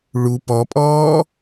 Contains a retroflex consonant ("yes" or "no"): yes